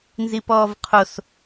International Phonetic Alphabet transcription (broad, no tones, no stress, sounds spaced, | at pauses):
n z i p ɔː v qʰ o s